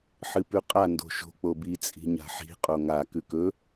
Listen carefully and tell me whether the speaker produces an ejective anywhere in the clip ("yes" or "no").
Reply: yes